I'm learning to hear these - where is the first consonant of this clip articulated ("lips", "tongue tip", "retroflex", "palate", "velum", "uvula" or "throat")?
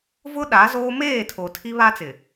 lips